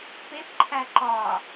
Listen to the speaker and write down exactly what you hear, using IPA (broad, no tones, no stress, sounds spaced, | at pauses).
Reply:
p e p ǃʰ æ ǃ ɒ